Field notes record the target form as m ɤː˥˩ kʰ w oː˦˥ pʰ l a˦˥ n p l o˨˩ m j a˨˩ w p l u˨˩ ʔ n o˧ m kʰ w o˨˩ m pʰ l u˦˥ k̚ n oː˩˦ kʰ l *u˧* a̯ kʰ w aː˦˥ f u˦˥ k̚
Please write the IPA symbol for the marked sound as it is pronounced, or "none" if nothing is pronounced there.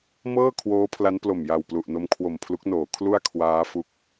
u˥˩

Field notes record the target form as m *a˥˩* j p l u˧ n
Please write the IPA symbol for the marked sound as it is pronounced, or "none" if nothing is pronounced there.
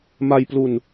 a˧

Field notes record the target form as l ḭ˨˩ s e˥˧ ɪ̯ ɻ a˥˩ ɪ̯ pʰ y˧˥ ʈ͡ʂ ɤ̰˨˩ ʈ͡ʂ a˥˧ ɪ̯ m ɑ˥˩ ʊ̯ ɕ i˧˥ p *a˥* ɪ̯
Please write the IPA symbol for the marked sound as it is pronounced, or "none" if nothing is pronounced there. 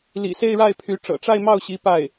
a˥˩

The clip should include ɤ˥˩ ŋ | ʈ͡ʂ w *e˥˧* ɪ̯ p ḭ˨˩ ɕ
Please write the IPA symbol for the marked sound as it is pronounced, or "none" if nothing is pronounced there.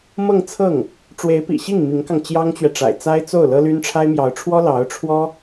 e˧˥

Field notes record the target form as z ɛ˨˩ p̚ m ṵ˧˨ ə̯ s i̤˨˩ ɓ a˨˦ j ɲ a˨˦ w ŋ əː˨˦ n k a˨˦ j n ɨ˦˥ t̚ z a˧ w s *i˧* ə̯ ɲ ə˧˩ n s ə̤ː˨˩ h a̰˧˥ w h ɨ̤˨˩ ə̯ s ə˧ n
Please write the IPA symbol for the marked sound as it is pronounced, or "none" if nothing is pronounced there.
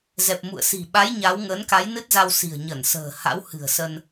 i̤˨˩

